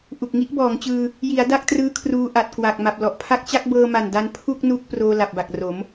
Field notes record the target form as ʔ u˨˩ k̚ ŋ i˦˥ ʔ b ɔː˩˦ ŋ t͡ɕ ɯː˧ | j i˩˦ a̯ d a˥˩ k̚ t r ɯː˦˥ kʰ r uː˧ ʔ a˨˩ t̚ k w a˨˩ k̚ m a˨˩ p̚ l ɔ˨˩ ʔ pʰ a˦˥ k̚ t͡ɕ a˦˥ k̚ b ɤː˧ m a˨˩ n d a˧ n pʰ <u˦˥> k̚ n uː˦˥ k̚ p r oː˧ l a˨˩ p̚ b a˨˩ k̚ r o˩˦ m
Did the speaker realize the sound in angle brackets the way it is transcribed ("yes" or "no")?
no